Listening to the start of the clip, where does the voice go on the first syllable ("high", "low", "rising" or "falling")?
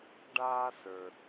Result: high